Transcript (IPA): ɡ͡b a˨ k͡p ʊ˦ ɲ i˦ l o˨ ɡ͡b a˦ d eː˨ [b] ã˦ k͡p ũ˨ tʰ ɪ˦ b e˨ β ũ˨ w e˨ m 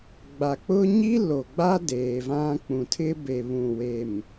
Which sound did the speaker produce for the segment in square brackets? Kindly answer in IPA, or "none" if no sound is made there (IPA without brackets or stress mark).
v